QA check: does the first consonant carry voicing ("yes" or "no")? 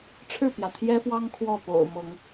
no